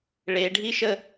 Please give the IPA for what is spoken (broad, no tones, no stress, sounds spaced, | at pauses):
ɭ e ɖʱ i ʃ ə